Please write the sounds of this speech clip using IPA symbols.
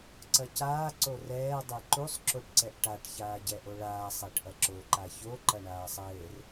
ǀ ɐ c aː ǀ o r ɛː dˤ ɛ ǃ u sˤ ǁ o ʈ ǀ ɛ ʔ ʈ a ʈ ç aː ɟ ɛ ʔ o ɭ aː sˤ ɛ ʈ ʔ ɐ ǁ o ǃ a ç o ǃ ɐ ɳ aː sˤ ɘː r

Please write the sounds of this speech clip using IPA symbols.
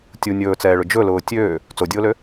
tʲ u nʲ ɵː t͡s ɛː ɭ ʊ d͡ʒ ɵ l ʊː tʲ øː | t͡s o dʲ ʊː l ø

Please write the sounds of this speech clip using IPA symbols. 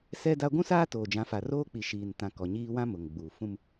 s ɛ˦ d a˦ ɡʷ ũ˦ s aː˦ t oː˨ d͡ʒ ã˨˦ f a˨ r oː˦ k͡p i˨ ʃ iː˨ n t ã˨ k ɔ˨ ɲ iː˦ w ã˦ m ʊ˨ ŋ ɡ͡b uː˨ f ũ˦ m

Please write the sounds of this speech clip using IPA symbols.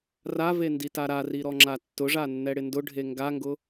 r a v e n d i t a ɾ a r i ɾ ɔ ŋ͡ǁ a tː ʊ ʐ a nː ɛ ɽ ɪ n d ʊ ɖʱ e ŋ ɡ a ŋ ɡ ʊ

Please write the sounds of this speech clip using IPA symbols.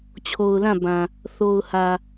t͡ɕʰ o˨ ʊ̯ l ã˦˨ b ã˨ | θ o˨ ʊ̯ h ä˨

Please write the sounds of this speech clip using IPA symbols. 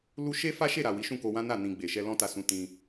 l u˦ ʃ e˦ f a˦ ʃ e˦˨ ɾ a˨ w i˨˦ ʃ ũ˦˨ k o˧ w ã˦ n a˦˨ n ĩ˨ ɡ͡b e˨ ʃ ɛ˧ l ɔ̃˦ t a˧ s ũ˧ t ĩ˧

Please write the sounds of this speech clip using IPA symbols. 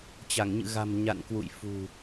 t͡ɕ a˧˩ ŋ ɲ ɨ̰˧˨ ɣ a̤˨˩ m ɲ a̰˧˨ n k w ṵ˧˨ j f ṳ˨˩

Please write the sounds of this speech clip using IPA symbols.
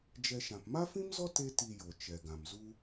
d͡ʒ ɛ˧ ʃ ã˨ p m a˦ f ĩ˦ m z ɔ˦ t e˦ t i˧ j o˨ t͡ʃ ɛ˨ ɡ ã˨ m z u˦

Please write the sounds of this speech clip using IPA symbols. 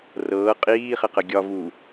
r ɤː qʼ iː χ ɪ q ə ɡʲ ɒ v u

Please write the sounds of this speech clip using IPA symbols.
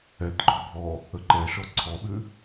ɛ t ɡ͡ǃ ɔ bʱ ɔ | ə ǃ ɛ ʃ ɔ ǀʰ ɔ ɓ ʉ

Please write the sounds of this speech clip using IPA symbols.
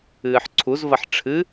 ɨː ħ ǀʰ u z v ɐ ħ ʈ͡ʂʰ ɨ

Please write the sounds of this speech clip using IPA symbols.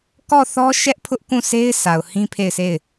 k ɔ˦˨ θ ɔ˦ ʃ ɛ˦ ʔ pʰ ʊ˦ ʔ k ũ˦˨ sʰ e˦ ɪ̯ sʰ a˨ ʊ̯ h ĩ˦ pʰ e˦˨ ɪ̯ sʰ e˦˨ ɪ̯

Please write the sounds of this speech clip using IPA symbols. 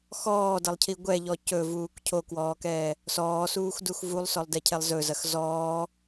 x ɔː d ɐ lˠ cʰ i ɡʷ ɛ ʎ ɔ c ɵ v uː k cʰ o k w ɔː k ɛː | s ɔː s uː x d u x v u lˠ s ɔ lˠ d ɛ cʰ ɛ lˠ z ɵ z ɐ x z ɔː

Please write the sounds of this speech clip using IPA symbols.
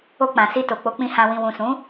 o˧ k͡p ã˨ s i˧ t o˨ k͡p o˨˦ k͡p ĩ˧ h ã˧ w ĩ˨ w ũ˨ s ũ˨˦

